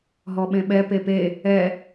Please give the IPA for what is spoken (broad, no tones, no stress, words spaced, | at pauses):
ɦɔɓẽɓɛ pepe | ɛ